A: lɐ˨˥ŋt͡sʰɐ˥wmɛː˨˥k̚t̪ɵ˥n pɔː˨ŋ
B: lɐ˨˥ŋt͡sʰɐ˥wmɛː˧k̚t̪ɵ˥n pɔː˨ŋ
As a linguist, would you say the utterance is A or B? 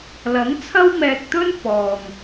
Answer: B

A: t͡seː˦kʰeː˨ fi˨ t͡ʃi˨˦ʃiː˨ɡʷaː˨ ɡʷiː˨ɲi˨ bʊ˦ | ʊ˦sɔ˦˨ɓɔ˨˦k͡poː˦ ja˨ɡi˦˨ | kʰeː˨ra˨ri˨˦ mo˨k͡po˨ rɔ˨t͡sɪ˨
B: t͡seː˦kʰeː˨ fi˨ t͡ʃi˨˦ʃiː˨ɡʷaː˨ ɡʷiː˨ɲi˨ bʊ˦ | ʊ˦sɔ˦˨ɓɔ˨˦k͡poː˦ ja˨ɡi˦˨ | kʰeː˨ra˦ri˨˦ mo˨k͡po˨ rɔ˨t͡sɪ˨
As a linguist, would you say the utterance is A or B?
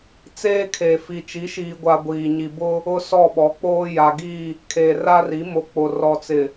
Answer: B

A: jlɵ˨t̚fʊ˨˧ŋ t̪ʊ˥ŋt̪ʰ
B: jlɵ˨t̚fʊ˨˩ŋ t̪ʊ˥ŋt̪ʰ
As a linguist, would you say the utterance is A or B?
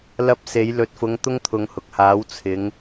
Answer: A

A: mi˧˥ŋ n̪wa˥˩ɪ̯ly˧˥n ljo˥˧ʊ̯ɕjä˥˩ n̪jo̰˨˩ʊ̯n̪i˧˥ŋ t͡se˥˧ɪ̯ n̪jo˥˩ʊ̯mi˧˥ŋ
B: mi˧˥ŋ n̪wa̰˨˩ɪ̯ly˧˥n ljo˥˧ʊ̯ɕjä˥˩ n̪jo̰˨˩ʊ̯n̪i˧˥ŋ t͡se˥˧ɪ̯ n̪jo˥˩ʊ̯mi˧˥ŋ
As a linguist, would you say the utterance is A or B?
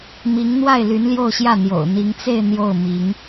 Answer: A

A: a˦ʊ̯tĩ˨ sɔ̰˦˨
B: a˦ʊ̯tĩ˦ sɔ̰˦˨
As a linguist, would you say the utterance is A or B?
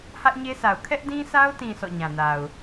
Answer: A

